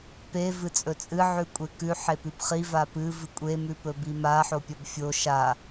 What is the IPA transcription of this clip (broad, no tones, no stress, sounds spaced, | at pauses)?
p e v ɨ t͡sʼ ɵ t͡sʼ ɨ ʕ ʉ kʷʼ e k ʉ ħ e p ʉ b χ i v a p ɨ v ɨ kʷʼ e m ʉ p ɵ b i m a ħ o pʲ ɐ b fʲ o ʃ a